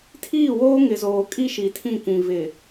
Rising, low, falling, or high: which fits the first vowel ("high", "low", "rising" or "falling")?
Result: falling